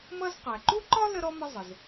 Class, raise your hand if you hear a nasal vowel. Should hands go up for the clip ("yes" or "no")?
no